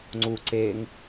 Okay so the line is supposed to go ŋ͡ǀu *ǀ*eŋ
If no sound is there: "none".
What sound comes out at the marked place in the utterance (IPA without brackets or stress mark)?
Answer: ǀ